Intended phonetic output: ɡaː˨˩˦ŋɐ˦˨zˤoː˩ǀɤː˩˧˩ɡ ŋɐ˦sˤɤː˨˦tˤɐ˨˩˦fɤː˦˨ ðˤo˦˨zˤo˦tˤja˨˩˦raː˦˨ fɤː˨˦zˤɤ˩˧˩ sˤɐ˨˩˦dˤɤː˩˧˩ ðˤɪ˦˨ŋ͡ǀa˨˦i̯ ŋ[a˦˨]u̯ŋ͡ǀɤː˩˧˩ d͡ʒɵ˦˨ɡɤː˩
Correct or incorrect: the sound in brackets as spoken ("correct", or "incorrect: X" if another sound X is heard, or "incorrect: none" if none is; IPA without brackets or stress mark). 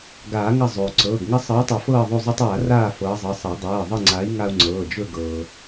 incorrect: a˦